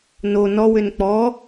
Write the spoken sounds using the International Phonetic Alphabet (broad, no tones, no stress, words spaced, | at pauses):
no nɔwʏn k͡pɔ